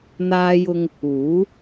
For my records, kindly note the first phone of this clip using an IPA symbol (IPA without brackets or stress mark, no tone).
n̪